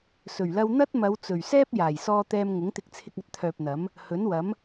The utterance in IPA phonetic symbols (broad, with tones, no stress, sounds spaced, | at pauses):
s ɵ˨˩ ɥ l ɐ˧ w n̪ ɐ˥ t̚ m ɐ˨˧ w t͡s ɵ˨˩ ɥ s ɛː˥ p̚ j aː˨˩ j s ɔː˧ t̪ ɛː˧ m ŋ ʊ˨˥ ŋ t̪ ɪ˧ k̚ t͡sʰ ɪ˧ k̚ ɐ˧ t̚ t̪ʰ œː˨ p̚ n̪ ɐ˨˥ m | h ɵ˨˥ n w ɐ˨˥ m